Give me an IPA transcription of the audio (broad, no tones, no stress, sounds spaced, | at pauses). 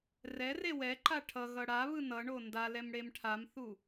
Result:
r ɛ r e w ɛ ǃ a ʈʰ ʌ ɣ ʌ ɽ a β ɯ n ʌ ɳ o n d a l ɛ m ɽ e m ʈʰ a m θ u